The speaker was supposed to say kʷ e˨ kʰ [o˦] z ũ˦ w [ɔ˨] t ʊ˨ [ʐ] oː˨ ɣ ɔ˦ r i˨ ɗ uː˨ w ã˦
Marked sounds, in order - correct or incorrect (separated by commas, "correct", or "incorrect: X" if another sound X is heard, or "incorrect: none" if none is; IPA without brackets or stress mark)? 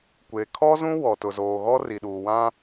incorrect: ɔ˦, correct, incorrect: z